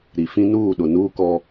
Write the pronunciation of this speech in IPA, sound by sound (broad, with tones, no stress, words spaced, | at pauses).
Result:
ɾi˨ fĩ˦ nuː˦˨ɗʊ˨ nuː˦ kɔ˦